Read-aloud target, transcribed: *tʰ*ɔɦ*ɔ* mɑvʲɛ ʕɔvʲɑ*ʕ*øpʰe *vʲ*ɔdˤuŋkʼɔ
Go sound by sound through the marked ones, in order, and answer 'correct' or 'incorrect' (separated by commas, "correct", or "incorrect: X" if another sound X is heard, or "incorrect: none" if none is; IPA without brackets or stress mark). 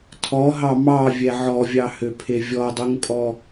correct, incorrect: ɑ, incorrect: h, correct